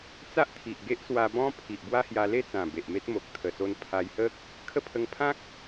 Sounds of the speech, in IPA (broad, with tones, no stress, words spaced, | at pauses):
t͡sa˦ʔt̪ʰi˨ʔ ɡe˦ʔswa˧bɔ̃˦ pʰi˨ʔbwa˦hja˧ le˥˧t͡sã˨˩ be˨ʔme˦t̚mo˨k̚ t̪ʰə˨˩so˧n pʰa˧jhə˦k̚ | kʰə˥˧pʰə˧ŋ pʰã˦k̚